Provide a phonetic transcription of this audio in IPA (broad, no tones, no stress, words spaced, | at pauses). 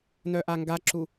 nœʔaŋɡaǁu